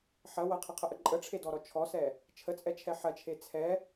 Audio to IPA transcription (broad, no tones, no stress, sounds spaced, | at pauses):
ħ ɐ w ɐ qʰ ɐ qʰ ə ʔ ə ǃʼ ə ʈ͡ʂʰ e d ɔ ɾ ɔ t͡ʃʰ ɔ s ɛ | t͡ʃʰ ə t͡sʼ ɛ t͡ʃʰ ɛ ħ ɐ t͡ʃʰ e t͡sʰ ɛ